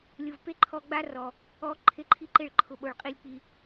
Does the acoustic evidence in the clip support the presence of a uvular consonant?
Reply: yes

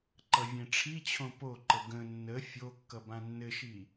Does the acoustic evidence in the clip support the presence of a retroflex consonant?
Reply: yes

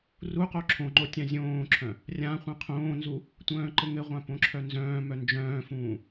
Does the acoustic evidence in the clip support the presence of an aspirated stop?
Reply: yes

